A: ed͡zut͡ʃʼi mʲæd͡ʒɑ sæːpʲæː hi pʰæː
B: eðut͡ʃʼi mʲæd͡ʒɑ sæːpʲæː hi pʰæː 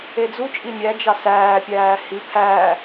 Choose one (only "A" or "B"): A